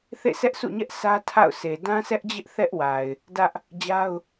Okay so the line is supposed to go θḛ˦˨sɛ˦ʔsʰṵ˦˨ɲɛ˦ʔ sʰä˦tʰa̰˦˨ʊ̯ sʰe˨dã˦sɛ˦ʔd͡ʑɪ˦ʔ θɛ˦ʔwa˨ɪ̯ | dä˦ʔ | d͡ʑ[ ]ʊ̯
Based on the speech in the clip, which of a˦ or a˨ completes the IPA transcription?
a˦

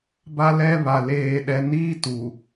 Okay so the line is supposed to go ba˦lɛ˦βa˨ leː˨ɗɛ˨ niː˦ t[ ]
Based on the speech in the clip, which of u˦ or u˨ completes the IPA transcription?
u˨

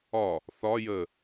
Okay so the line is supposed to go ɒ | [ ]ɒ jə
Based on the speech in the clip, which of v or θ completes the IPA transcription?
θ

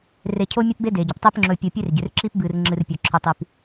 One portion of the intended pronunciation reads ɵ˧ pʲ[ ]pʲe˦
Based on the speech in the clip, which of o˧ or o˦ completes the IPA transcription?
o˧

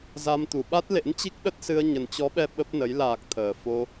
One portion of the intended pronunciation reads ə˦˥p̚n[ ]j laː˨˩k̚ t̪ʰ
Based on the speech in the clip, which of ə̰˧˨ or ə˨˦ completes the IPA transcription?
ə˨˦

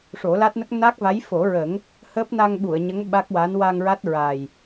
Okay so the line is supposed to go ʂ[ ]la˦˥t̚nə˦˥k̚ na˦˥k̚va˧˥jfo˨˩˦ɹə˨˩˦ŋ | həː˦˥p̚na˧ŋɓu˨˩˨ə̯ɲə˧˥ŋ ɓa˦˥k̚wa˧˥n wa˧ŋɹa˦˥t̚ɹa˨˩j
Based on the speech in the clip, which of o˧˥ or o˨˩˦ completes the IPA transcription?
o˨˩˦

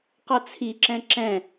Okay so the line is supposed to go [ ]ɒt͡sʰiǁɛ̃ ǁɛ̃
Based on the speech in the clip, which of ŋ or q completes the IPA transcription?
q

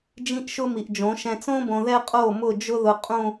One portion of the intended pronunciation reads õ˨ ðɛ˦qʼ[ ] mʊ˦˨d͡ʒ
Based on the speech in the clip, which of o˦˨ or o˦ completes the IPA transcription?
o˦˨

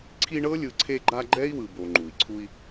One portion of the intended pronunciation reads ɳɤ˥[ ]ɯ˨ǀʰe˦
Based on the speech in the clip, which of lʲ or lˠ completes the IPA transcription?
lʲ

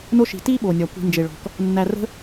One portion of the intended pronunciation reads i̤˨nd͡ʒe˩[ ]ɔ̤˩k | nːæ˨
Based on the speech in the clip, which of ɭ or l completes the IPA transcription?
ɭ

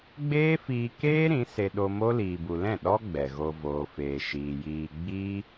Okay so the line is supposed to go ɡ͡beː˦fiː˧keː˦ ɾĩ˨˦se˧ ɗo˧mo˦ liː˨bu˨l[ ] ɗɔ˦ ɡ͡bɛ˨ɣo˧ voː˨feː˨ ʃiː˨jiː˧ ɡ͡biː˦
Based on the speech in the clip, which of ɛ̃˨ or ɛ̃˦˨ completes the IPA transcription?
ɛ̃˦˨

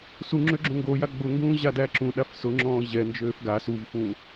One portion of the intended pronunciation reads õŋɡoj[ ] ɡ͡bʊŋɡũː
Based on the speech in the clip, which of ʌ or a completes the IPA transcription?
a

